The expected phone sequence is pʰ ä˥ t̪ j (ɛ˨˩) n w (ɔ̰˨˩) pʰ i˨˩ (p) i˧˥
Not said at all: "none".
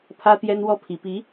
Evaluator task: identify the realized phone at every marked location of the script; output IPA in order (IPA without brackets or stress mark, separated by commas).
ɛ˥, ɔ˥, p